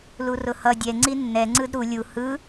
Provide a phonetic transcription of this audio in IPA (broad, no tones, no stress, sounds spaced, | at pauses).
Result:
l u r ʊ h ʌ dʲ ɛ ŋ͡ǀ i nː ɛ ŋ͡ǀ ɯ d ɾ u lʲ u h ɯ